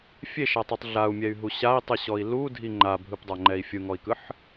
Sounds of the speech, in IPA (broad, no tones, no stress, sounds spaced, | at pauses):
fʲ e ʃ a tˤ ɯ tˤ ɮ a u̯ mʲ ɛ y̯ ɦ u ɕ a i̯ tˤ ɯ ɕ ɔ i̯ l u dʱ i ŋ͡ǃ a bʱ ɯ p dˤ a ŋ͡ǃ ɛ i̯ fʲ ɯ ŋ ɔ i̯ k ɯ ħ